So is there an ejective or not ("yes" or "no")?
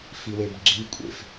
yes